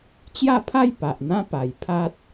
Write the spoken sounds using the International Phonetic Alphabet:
t͡ɕja˥˧pʰa˥˧j pa˨ʔn̪ã˦pa˨˩j pʰa˦t̚

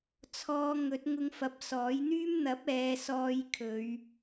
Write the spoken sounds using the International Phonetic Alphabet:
t͡sʰɔː˧ŋɵ˨˥t̚ ŋʊ˧ŋfɐ˨˥p̚ sɔː˨˥jn̪yː˥m n̪ɐ˨˥p̚ɛː˨˧ sɔː˧j kʰɵ˨˧ɥ

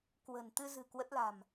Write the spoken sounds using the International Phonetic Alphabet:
kwə̤˨˩nt̪ɨ˧zɨ̤˨˩ kwə˦˥t̚la̤˨˩m

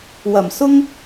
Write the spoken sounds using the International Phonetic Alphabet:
wɐ˨˩msʊ˥ŋ

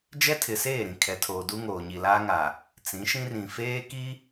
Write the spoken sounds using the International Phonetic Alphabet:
d͡ʒɛ˦tʰɪ˨seː˦˨ ɾĩ˨kʰɛ˨tʰoː˨duː˦ ŋoː˨ɲi˨laː˦ŋa˨ | t͡sĩ˨˦ʃĩ˦ rĩ˨feː˦ ki˦

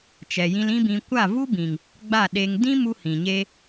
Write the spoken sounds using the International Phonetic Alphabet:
t͡ʃɛ˨jĩ˧lĩ˦bĩ˧ kʷa˦˨vu˦bĩ˨ŋ | ɡ͡ba˦˨ɗe˧ŋ dĩ˦mu˧ hĩ˨ɲe˦

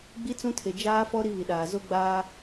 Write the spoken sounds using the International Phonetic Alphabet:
ɡ͡bi˦ t͡sũ˦tʰe˨ d͡ʒaː˦fɔ˦ ɾi˦βi˨ɗaː˨ zo˦ɡ͡baː˦

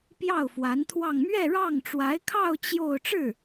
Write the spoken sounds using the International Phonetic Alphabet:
pjɑ˥˩ʊ̯fwa˧˥nt̪ʰwɑ˥˧ŋ mɥɛ˥˧ɻɑ˥˩ŋ ʈ͡ʂwa˧˥ɪ̯kʰɑ˥˧ʊ̯ t͡ɕjo˥˧ʊ̯ ʈ͡ʂɻ̩˥˩

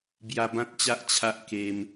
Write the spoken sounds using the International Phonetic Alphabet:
bja˧bã˦t̚t͡ɕa˦ʔ t͡ɕʰa˦ʔke˧m

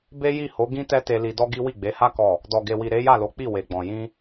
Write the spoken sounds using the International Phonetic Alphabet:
be˦ji˦˨ho˨˦ ɡĩ˦tɛ˦ te˧li˧dɔ˦ɡi˦ wi˦˨ɡ͡be˨˦ha˦ kɔ˦˨ | dɔ˨ɡe˨wi˨ ɾe˨˦ja˦˨lo˨˦k͡pi˦˨ we˨ɡ͡bɔ̃˨ jĩ˧

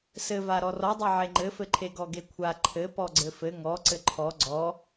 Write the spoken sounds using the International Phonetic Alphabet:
sɘva ɾɔrɔdˤe ʕeŋ͡ǃɘfɘǃʰe ɡɔɡekʷʰa ǃʰɘ pɔɡ͡ǀɘfɘ ŋɔ ǀɘǃʰɔ ɡ͡ǀɔ

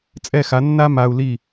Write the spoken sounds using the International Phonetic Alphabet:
t͡sʼɛ˥˩xa˩˥ nːa˥ ma˧u̯li˥˩

